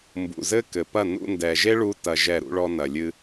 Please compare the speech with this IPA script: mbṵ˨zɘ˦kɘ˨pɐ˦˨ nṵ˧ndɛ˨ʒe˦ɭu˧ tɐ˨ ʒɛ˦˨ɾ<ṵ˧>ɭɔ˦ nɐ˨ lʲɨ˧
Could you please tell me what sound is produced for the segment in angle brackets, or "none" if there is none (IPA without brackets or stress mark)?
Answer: ṵ˦